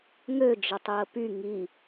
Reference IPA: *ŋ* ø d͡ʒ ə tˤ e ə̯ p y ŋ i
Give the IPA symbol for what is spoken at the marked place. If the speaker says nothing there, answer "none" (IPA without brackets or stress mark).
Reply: ŋ